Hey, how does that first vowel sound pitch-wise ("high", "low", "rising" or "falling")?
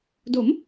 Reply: rising